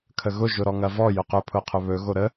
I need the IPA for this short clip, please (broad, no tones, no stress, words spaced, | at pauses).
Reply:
kʰəɣʊ ʒʊɾɔŋɐvɔ jʊqɵ pʰʊqʰɵβɵ ɣoɾə